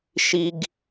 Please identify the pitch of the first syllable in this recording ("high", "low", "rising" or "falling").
high